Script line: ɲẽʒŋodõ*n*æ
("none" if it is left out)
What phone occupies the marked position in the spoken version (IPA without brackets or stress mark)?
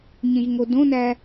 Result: n